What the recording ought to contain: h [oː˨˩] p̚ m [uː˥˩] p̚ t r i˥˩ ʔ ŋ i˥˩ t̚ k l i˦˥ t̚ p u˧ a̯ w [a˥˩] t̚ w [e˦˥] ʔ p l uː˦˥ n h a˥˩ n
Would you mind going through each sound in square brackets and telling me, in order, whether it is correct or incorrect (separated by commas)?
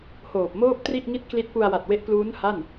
correct, incorrect, incorrect, correct